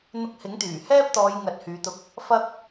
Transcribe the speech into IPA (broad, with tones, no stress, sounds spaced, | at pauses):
n̪ ʊ˧ k̚ h ɪ˨˥ ŋ t̪ yː˨˩ h ɛː˥ p̚ t̪ ɔː˨˧ j ŋ ɐ˨˥ t̚ h yː˨˧ t̪ ʊ˧ k̚ | f ɐ˥ k̚